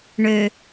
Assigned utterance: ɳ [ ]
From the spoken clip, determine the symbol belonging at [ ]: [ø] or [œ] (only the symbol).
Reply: ø